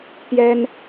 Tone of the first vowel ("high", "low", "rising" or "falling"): high